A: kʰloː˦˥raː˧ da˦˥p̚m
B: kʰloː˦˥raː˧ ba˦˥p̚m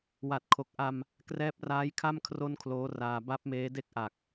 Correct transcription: B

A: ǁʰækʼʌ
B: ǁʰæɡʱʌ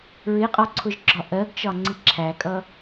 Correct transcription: A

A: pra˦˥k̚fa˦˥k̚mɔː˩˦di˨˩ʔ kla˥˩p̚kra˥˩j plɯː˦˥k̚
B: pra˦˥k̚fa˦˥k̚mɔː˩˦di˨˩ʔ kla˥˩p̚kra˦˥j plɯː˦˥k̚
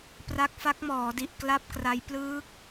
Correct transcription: B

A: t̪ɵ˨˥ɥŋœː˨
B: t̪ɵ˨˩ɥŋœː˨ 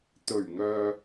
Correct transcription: B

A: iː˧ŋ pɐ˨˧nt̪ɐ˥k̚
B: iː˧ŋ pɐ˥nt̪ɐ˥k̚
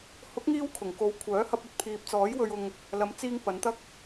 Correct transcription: A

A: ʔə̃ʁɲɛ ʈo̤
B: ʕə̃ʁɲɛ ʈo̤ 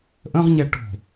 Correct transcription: A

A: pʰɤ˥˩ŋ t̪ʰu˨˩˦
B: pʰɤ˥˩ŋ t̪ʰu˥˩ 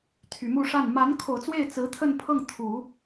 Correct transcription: A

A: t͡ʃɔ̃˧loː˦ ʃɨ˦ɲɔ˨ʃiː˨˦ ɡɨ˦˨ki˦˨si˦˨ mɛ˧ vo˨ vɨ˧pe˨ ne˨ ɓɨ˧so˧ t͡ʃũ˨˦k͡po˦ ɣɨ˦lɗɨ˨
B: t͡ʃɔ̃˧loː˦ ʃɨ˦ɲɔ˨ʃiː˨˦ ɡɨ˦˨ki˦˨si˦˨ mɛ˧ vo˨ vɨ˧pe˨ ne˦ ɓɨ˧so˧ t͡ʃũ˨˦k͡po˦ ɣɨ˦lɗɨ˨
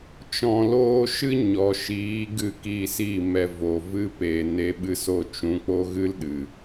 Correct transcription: B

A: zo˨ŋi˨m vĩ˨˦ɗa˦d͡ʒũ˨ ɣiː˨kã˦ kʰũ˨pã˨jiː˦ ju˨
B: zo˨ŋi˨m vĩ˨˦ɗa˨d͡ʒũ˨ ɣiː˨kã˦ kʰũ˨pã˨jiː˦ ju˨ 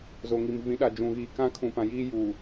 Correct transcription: B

